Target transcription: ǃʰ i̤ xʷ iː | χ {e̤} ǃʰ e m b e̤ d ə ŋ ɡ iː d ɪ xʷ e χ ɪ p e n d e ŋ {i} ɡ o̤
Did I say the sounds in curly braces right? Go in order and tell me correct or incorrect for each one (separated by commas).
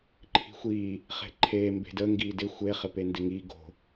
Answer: correct, correct